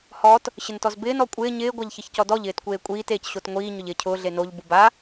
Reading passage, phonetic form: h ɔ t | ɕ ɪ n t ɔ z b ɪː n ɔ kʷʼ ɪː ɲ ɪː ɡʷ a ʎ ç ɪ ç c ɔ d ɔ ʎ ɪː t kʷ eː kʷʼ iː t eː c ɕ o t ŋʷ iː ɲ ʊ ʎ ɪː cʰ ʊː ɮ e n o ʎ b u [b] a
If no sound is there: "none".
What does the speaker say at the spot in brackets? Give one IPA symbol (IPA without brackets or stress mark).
b